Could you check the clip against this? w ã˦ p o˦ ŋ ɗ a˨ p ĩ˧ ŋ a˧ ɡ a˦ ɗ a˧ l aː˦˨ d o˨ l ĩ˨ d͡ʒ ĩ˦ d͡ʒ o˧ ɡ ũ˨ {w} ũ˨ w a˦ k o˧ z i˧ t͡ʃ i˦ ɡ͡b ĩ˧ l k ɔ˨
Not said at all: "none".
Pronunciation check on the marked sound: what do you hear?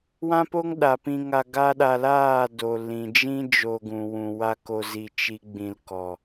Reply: w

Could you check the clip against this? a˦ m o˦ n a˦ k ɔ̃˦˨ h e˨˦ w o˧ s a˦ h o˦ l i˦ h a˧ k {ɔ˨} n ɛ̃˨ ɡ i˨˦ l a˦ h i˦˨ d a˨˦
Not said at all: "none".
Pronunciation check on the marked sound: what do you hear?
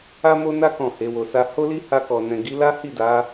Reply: ɔ˨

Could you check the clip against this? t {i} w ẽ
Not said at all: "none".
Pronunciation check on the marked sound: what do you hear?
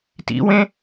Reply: ḭ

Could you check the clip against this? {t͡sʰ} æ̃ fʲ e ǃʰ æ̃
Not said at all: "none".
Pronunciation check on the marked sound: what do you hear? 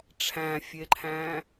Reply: ʈ͡ʂʰ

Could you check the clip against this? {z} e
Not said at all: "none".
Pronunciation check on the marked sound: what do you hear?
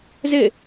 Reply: z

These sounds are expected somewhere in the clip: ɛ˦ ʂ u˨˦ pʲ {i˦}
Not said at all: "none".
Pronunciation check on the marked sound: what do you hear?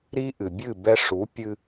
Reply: ɨ˦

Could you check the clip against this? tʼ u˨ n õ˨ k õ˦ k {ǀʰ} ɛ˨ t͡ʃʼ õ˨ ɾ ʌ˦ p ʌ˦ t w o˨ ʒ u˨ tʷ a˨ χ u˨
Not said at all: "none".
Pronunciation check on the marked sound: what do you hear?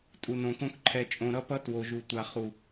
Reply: ǃʰ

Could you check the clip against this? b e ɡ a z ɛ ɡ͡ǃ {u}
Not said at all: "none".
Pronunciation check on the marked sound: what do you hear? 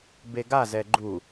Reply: u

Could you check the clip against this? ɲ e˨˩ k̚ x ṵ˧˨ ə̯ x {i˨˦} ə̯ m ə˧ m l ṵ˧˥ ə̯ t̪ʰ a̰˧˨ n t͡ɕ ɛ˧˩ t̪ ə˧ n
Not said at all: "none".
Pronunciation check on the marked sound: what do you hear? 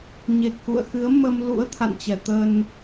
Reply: ɨ˨˦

